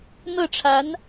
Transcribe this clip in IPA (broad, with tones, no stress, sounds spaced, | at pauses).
n̪ ɤ˥˩ ʈ͡ʂʰ a˧˥ n